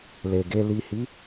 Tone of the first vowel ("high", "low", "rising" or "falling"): low